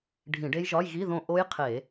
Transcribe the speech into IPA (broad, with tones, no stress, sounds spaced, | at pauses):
ɖʱ ĩ˧˩˧ ɖ e˦˥ j ʒ ɒ˧˥˧ j ɣ i˧˥˧ ð õ˦˨ ʔ o˦˥ j qʰ e˧˩˧